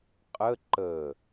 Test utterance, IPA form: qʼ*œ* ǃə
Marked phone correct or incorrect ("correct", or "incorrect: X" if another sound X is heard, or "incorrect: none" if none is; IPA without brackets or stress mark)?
incorrect: ə